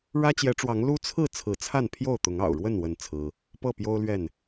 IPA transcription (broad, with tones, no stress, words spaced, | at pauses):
ɻä˦t͡ɕjɛ˨˦ʈ͡ʂwɑ˨˦ŋ lu˦t͡sʰɹ̩˥˨ t͡sʰɹ̩˨˦t͡sʰa˥˨n pʰjo˥˨ʊ̯t̪ʊ˨˦ŋɑ̰˨˩ʊ̯ɻwə˥˨n wə˥˨nt͡sʰɹ̩˦ | pɤ˥˨pjo˦ʊ̯lɥɛ˥˨n